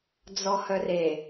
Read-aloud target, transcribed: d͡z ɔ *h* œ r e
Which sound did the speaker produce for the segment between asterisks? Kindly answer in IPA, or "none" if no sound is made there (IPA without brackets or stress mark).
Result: h